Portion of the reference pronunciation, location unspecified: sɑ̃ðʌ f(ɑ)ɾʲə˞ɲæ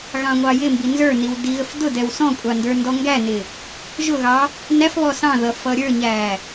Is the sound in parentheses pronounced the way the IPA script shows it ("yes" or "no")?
no